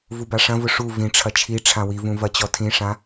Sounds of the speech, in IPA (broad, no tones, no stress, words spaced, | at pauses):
vubaʂɐ̃vʊ ʂu vĩʈ͡ʂʰɐ t͡ʃʰi ʈ͡ʂʰãwivũ vɐt͡ɕɔtʰĩʂã